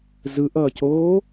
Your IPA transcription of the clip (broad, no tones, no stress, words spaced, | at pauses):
zɯʔʌːcoː